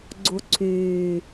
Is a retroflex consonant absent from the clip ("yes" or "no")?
yes